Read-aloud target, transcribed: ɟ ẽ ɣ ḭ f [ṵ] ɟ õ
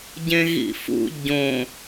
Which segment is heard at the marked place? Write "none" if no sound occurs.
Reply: ṵ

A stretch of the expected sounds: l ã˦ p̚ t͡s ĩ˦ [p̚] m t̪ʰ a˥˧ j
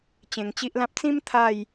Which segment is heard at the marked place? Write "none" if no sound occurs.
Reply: none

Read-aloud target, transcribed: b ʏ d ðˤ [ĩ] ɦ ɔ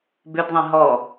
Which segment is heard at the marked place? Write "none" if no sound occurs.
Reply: ĩ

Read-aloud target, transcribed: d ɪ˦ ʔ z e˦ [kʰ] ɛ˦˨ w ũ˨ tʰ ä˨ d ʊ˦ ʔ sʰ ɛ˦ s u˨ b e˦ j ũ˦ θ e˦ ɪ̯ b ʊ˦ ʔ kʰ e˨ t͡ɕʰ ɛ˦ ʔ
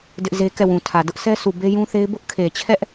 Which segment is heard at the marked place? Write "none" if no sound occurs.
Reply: k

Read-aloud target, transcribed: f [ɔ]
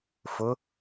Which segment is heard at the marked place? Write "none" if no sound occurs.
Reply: ʊ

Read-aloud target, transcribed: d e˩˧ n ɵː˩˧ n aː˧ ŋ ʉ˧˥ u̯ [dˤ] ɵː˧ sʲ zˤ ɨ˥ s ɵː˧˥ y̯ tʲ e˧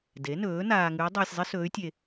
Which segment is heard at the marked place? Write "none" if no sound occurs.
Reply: dˤ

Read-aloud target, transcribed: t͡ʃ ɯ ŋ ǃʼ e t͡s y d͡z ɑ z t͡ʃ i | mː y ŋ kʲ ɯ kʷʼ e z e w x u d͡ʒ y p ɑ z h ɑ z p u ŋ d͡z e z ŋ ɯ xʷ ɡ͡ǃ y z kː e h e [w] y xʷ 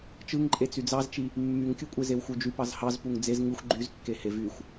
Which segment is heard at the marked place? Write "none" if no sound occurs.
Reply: v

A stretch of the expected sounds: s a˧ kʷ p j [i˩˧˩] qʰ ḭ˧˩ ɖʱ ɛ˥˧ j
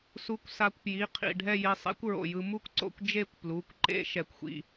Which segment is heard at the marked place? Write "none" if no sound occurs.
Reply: i˩˧˩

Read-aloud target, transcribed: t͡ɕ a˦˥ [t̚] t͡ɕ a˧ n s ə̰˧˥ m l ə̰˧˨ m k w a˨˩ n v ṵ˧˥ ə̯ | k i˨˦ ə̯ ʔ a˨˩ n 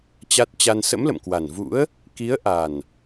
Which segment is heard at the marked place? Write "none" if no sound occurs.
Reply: t̚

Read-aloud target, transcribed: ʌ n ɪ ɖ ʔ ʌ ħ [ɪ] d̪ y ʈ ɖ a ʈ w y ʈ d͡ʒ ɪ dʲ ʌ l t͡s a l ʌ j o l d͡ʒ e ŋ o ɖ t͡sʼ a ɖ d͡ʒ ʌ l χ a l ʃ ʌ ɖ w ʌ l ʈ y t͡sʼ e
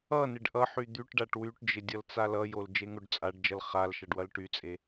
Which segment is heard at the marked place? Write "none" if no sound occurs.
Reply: y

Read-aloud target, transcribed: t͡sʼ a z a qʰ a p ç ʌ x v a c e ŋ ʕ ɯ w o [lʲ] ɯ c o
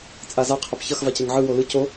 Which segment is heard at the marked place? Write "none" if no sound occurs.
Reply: l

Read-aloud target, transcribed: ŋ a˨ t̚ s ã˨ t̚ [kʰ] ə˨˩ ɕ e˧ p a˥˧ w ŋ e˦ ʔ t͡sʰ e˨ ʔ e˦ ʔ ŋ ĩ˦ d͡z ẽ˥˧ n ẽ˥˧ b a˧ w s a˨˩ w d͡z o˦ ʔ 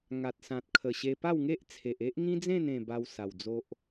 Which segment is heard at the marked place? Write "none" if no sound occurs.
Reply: kʰ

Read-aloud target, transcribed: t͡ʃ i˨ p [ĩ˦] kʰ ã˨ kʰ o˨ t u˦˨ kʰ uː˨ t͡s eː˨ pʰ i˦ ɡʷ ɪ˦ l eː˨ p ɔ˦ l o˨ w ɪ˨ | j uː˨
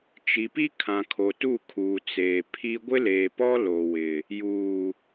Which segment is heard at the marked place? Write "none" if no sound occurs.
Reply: i˦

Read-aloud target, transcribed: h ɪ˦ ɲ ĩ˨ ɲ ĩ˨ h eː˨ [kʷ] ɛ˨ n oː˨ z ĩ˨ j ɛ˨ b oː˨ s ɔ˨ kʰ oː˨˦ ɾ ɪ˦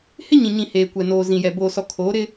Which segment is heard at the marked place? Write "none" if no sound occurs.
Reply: kʷ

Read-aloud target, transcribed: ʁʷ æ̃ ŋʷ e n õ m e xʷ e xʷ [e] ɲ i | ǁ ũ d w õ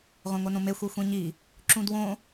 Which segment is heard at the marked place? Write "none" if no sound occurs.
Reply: ẽ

